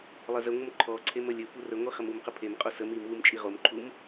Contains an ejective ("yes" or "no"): yes